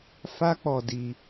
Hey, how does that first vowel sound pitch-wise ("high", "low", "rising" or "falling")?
high